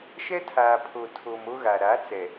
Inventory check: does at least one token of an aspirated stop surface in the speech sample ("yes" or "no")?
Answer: yes